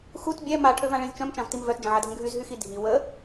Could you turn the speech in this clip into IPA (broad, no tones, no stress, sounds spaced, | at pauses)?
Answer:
x u t bʲ ɛ m a ʈʰ ø v ã ɭ ĩ z t͡ʃ œ̃ m t͡ʃ ã v t i m v œ t d͡ʒ ə̃ ʕ a dʱ ə̃ ɡʱ y z ɦ y x i dʱ i w ə